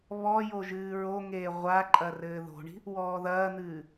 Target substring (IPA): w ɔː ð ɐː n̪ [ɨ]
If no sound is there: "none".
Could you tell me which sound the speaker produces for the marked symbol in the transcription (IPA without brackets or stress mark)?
ɨː